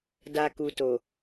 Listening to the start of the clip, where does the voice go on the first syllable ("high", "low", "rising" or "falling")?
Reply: high